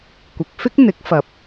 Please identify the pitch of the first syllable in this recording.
low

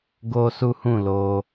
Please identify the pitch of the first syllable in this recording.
high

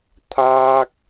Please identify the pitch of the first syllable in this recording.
high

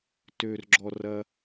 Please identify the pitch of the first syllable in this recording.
low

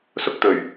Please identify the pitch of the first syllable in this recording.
high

